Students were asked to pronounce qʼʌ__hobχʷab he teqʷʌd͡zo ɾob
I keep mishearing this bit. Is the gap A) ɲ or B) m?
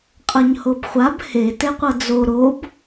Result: A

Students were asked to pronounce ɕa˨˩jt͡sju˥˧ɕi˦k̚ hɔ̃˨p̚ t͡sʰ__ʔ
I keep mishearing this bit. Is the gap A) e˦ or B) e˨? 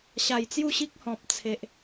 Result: B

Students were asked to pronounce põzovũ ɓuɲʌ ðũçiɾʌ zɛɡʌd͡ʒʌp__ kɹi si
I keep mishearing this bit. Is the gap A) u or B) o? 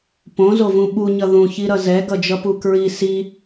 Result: A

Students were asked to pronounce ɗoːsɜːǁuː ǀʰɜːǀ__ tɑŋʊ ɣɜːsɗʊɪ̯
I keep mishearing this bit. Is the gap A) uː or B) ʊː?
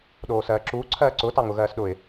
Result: B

